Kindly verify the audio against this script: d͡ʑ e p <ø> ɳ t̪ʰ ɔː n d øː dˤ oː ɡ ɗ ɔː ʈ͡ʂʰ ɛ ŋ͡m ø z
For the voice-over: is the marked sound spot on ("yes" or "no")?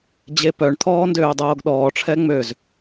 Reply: no